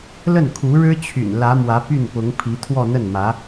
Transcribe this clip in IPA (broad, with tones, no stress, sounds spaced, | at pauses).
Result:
l ə˥˩ n kʰ u˧˥ ɻ ɻ̩˥ t͡ɕʰ y̰˨˩ n l ä˧˥ m w ä˧˥ p y˥˩ n p ʊ˧˥ ŋ pʰ i˧˥ t̪ʰ w ɔ˥˧ n̪ ə˥˩ n m ä˧˥